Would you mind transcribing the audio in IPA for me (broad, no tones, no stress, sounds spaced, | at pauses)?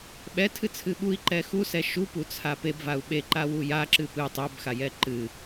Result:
ɓ ɛ tʰ ɨ t͡sʰ ɨ ɓ u i̯ ǃ ɛ x u s ɛ ʃ u p u t͡sʰ a p e b v a u̯ ɓ e ǃ a w u j a ǁ ɨ p ɨ tˤ ɛ b x a j ɛ ǃ ɨ